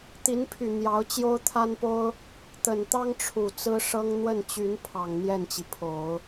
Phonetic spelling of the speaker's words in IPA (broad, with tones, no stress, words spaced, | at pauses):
t̪i˧˥npʰy˨˩ n̪jɑ˧˥ʊ̯t͡ɕjo˥ʊ̯t̪ʰa˥npo˥ʊ̯ | t̪ə˨˩nt̪ɑ˥ŋ ʈ͡ʂʰu˨˩ t͡sɹ̩˥ʂɤ˥ŋ n̪wə˥˩nt͡ɕy˧˥n pʰɑ˨˩ŋn̪jɛ˥˩nt͡ɕi˩pʰo˨˩˦ʊ̯